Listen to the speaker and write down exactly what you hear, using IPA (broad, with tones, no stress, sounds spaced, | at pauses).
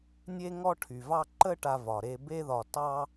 nʲ e˦ ŋ ɔ˦ ʈʰ y˨ v ɑ˦ ǃ ə˦ ʈ a˧ v ɒ˨ ɾ e˧ b e˦ ð ɒ˧ t ɑ˦